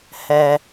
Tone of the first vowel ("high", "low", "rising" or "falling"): high